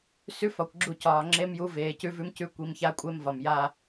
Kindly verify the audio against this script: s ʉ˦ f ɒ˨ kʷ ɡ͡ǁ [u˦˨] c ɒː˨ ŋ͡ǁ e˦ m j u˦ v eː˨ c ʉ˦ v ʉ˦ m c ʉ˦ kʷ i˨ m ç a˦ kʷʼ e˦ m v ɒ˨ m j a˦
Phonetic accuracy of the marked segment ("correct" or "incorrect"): correct